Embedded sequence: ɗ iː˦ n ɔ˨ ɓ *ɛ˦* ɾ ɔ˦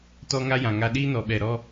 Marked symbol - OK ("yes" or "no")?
no